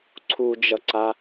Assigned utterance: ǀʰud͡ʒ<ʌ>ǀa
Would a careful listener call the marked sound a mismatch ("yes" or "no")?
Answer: no